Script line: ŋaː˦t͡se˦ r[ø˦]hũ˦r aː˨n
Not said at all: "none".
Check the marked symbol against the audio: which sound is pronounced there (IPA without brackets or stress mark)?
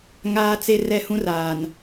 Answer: ɛ˦